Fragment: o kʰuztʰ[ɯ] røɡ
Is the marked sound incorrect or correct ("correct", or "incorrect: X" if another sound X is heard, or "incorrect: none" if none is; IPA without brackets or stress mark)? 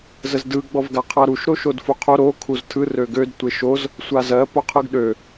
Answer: correct